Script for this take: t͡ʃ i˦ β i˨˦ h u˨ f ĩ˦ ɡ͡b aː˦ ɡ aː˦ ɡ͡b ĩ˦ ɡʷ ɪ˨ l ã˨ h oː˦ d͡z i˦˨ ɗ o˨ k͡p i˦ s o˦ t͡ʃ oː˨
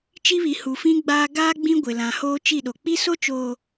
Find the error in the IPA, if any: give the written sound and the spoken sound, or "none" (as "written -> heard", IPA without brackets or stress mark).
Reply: d͡z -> t͡ʃ